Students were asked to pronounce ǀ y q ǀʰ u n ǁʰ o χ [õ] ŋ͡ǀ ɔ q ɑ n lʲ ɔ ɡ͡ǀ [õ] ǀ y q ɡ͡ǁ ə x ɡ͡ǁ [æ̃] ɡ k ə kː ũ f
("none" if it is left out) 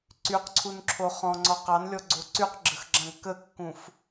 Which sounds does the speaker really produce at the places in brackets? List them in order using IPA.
ɔ̃, o, ã

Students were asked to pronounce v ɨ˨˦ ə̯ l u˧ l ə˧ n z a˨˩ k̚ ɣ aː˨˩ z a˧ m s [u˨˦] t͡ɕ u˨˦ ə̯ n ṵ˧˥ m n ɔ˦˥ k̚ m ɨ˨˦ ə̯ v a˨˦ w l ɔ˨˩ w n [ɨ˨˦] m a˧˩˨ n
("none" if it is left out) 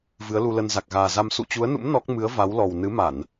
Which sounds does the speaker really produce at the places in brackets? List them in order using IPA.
ṵ˧˨, ɨ˨˦

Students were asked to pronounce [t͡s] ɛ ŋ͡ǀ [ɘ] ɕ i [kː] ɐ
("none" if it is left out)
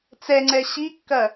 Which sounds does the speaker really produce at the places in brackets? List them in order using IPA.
t͡s, ɛ, kː

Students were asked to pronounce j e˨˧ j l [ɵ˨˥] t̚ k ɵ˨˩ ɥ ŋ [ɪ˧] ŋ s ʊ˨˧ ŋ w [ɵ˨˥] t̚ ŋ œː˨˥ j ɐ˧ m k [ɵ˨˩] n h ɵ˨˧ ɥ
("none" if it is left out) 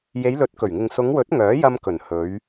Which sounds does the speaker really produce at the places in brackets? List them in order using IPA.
ɵ˨˥, ɪ˨, ɵ˨˥, ɵ˨˩

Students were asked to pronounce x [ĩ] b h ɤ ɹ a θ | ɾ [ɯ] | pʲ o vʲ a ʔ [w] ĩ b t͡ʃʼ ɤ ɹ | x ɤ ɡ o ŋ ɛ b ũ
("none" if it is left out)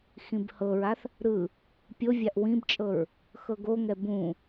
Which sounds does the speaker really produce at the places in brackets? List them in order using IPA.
ĩ, ɯ, w

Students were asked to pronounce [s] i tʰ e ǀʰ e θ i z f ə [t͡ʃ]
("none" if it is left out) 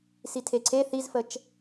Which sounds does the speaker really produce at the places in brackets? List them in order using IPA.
s, t͡ʃ

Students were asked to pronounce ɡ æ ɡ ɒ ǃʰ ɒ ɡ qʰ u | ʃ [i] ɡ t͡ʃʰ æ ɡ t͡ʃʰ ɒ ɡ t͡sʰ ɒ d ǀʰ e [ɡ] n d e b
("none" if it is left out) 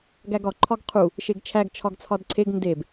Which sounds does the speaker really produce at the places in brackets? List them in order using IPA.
e, ɡ

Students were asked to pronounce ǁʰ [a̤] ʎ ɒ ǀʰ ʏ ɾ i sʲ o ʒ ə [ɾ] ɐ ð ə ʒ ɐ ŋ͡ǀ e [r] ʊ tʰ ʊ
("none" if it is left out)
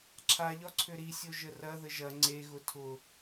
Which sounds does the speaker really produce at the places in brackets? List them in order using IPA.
a, r, ɣ

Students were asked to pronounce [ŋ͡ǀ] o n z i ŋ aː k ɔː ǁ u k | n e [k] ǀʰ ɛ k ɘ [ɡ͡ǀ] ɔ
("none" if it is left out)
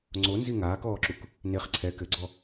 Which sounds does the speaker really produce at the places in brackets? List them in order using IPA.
ŋ͡ǀ, χ, ɡ͡ǀ

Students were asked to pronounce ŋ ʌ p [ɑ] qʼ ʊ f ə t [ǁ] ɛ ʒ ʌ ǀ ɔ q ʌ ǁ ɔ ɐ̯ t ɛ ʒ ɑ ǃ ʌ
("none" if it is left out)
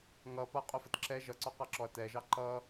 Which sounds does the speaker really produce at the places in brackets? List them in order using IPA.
ʌ, ǁ

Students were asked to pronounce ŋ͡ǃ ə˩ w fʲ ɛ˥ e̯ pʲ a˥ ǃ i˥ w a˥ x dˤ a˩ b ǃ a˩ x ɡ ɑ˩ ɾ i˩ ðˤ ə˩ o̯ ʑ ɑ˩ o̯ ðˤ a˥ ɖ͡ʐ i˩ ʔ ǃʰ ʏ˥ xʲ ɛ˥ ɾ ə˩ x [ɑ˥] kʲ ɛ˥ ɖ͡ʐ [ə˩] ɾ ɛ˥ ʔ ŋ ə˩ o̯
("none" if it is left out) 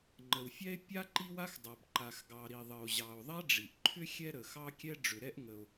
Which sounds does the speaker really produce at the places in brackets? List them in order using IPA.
ɑ˥, ʏ˩

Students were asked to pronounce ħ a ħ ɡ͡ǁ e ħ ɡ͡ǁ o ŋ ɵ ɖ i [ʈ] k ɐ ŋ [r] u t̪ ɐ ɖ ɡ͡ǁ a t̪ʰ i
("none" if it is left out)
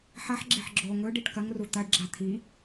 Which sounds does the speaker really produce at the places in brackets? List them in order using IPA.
ʈ, r

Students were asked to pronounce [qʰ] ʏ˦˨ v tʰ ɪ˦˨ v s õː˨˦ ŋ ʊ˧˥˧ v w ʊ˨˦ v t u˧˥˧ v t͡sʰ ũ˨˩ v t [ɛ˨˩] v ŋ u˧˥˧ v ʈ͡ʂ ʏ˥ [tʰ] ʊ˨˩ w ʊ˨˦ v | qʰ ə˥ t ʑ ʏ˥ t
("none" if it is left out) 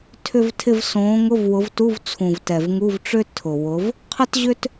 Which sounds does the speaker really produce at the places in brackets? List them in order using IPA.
tʰ, ɛ˨˩, tʰ

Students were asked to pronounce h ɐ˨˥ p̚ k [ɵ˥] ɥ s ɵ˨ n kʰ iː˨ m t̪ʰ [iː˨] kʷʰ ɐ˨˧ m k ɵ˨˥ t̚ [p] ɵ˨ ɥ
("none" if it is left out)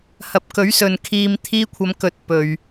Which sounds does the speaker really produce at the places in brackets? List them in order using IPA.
ɵ˨˥, iː˧, p

